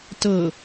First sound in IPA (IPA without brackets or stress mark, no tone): t